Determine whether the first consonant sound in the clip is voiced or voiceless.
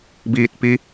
voiced